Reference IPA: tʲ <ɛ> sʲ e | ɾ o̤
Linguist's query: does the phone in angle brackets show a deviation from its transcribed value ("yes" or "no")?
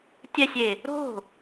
no